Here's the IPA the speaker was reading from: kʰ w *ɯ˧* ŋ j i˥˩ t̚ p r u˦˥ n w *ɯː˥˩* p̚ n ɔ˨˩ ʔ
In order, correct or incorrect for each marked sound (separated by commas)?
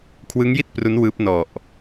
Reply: incorrect, incorrect